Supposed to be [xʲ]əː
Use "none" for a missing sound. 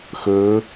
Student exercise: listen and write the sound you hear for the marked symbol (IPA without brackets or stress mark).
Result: x